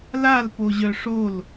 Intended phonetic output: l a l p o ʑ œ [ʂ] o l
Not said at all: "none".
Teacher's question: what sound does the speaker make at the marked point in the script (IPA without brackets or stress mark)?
ʂ